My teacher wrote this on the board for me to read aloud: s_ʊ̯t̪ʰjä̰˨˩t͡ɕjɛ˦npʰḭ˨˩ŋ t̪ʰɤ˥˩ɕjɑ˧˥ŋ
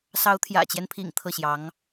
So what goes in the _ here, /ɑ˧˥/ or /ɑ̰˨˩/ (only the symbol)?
ɑ˧˥